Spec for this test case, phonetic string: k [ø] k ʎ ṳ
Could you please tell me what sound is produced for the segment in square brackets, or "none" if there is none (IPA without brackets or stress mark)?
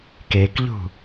e